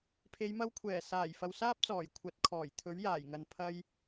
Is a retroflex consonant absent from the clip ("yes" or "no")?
yes